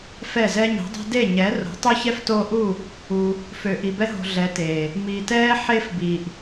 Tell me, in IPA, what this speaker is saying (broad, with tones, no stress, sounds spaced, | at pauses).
f ɛ˦˨ z ɛ˦ ɲ i̤˨˦ dˤ i̤˦ d e˦˨ ɲ ɛ˨˦ r o̤˨˦ tˤ u˦ ç ɛ˦ f t oː˧ ʔ u˦˨ | u˧ | f ø˨ ʔ i˨ b ɛ˦ ɦ o̤˧ ɮ ɛ˨˦ t eː˨ | m iː˨ t ɛː˦ ħ e˦ f b iː˨ ʔ